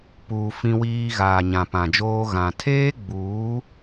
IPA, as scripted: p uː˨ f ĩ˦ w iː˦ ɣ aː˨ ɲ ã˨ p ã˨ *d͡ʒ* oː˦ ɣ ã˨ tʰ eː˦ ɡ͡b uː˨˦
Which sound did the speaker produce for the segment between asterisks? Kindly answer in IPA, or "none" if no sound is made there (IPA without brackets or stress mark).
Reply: d͡ʒ